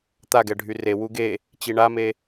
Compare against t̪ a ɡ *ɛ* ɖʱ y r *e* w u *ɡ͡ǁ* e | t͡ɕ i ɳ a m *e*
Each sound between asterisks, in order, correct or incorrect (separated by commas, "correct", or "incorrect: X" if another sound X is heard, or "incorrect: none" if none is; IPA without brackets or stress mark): correct, correct, incorrect: ɡ, correct